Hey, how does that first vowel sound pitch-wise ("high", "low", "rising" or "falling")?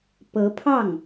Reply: rising